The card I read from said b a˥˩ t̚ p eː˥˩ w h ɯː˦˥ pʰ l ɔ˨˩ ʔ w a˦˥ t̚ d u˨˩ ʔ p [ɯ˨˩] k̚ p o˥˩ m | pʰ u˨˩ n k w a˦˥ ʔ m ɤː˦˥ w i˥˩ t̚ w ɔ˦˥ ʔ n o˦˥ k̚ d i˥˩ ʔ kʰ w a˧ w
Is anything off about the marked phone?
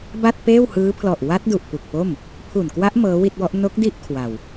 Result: yes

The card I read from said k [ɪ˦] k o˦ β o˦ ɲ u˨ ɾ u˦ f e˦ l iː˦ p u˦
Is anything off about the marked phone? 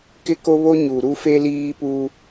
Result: no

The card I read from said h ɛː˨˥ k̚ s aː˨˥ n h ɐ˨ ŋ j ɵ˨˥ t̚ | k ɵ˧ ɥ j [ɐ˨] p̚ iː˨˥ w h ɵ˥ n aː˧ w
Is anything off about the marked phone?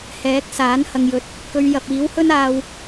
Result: no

